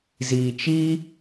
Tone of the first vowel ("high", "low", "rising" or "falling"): low